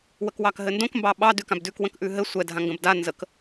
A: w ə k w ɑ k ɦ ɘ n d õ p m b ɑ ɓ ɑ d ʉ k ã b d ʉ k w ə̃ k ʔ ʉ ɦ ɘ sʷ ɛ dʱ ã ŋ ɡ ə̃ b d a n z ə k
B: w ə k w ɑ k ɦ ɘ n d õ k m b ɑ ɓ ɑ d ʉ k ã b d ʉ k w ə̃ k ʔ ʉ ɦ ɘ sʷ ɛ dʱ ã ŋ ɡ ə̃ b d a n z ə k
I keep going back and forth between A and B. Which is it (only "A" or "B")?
B